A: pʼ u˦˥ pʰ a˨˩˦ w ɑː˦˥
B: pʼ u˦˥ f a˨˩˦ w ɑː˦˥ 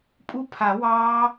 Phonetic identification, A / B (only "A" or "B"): A